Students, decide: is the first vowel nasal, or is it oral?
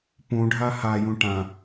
nasal